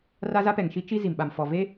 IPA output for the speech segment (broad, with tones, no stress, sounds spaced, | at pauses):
r a˦ z a˦ p ɛ˨ ŋ ʃ i˦ t͡ʃ i˦ z i˨ m ɓ a˨ m f ɔ˨ v e˦